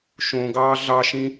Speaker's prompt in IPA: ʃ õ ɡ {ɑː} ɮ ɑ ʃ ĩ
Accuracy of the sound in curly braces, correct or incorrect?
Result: correct